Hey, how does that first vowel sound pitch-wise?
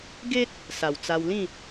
high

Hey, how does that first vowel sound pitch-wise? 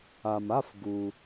low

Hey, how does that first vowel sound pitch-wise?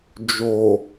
low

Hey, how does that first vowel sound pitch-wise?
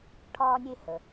high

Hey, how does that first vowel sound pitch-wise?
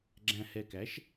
low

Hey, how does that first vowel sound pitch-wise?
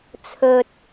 low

